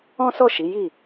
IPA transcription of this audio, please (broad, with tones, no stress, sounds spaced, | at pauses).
ɔ̃˦ s ɔ˦˨ ʃ i˨˦ j i˦˨